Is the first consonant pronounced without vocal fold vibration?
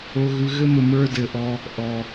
no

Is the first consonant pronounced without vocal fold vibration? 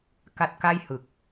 yes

